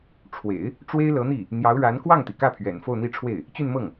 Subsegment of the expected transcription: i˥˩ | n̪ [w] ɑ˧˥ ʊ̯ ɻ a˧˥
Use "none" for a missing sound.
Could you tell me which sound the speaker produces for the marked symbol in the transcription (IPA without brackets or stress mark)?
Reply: j